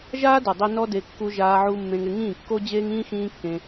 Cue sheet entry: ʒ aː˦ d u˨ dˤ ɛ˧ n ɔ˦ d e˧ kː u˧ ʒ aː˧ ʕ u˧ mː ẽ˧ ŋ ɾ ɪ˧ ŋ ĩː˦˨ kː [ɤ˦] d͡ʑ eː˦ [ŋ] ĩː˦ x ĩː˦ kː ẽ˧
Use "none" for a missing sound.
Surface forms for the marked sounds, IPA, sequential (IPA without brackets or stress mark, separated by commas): o˦, ŋ